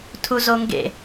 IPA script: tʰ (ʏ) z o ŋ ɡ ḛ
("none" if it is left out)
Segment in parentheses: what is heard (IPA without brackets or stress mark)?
u